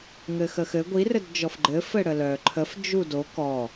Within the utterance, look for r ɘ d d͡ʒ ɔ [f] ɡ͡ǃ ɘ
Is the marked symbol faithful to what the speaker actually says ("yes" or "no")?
yes